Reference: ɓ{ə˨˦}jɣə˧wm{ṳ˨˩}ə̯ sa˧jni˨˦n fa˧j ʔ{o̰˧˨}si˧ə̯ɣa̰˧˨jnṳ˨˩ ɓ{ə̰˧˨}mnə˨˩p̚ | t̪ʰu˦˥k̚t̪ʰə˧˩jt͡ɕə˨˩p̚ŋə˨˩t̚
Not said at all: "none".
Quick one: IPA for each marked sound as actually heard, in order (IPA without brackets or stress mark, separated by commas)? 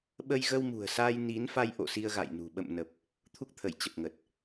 ə˧, ṳ˨˩, o̰˧˨, ə̰˧˨